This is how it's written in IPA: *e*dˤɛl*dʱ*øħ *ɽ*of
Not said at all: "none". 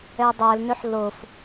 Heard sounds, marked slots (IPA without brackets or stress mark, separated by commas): ɛ, n, l